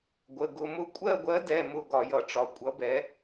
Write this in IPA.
ɡʷ ə˩˧˩ ɡ ʊ˩˧˩ m ʊ˦˨ kʷʼ ɜ˦˨ ɡʷ ɜ˨˥ d ɛ˩˧˩ m ʊ˦˨ ɡ ɒ˧˩˧ j ʌ˧˩˧ ʈ͡ʂ ɒ˩˧˩ kʷʼ ʌ˨˥ b ɛ˨˥

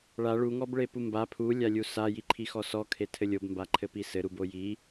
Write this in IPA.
ɭ a ɭ u ŋ ɔ b ɭ e p u m b a pʰ u lʲ a lʲ u s a j i ǃʰ i x ɔ s ɔ kʰ e tʰ ɘ lʲ o b m b a ǃʰ ɘ p i s ɘ ɾ u b o j i

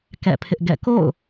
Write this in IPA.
k ɛ̰˦˨ pʰ ɪ˦ ʔ ɡ ɛ̰˦˨ k o̰˦˨ ʊ̯

